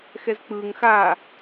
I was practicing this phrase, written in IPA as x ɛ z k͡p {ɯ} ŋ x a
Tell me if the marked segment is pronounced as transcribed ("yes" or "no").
yes